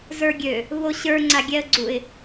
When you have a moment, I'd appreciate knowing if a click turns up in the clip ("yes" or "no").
yes